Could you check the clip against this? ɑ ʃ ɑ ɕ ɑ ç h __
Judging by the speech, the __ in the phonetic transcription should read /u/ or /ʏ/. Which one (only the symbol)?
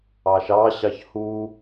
u